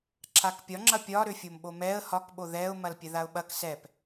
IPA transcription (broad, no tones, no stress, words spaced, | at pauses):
ǁʰakpʲɒŋ͡ǁɐ pʲɒɾøfʲomɓo mɛə̯ hɒkɓo ðɛʊ̯ mɐlpʲɛðaʊ̯ɓɐk sɛp